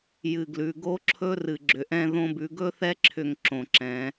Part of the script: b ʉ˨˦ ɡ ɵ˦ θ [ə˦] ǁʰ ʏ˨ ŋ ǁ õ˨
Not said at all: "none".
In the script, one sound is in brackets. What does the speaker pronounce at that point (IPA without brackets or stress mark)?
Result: ɛ˦